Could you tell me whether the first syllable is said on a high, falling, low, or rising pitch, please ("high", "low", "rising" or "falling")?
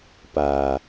low